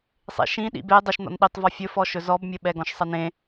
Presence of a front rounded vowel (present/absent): absent